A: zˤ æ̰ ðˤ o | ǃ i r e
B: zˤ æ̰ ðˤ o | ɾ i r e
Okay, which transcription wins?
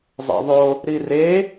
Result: B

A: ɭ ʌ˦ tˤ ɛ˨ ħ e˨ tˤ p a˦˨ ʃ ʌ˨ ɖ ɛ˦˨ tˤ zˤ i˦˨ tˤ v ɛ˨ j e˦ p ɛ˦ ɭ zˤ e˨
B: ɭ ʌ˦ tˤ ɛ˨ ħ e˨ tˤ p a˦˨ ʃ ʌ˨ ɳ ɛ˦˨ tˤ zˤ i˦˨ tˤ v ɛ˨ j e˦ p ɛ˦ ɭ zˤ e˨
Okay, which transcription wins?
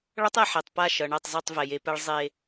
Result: B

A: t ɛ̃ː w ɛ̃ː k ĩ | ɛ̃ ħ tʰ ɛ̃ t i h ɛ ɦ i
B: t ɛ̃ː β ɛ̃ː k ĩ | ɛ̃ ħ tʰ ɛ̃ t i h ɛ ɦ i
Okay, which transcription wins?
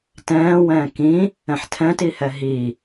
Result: A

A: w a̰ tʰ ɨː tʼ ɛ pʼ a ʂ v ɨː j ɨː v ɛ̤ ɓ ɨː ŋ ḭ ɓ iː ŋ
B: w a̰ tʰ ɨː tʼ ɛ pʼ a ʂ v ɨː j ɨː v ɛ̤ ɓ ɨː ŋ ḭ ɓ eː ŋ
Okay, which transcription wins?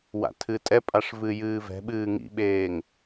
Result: B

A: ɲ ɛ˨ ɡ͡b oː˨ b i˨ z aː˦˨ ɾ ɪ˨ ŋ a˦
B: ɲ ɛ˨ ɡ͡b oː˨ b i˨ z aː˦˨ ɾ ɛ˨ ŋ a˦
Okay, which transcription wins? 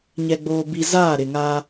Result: A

